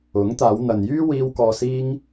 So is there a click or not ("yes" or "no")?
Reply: no